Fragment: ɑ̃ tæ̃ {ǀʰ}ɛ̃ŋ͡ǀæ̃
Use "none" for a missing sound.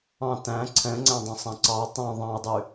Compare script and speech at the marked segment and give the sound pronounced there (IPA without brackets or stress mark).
ǀʰ